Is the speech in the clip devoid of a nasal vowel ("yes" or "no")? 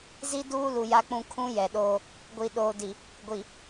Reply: no